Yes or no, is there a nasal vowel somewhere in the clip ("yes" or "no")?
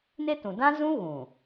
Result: yes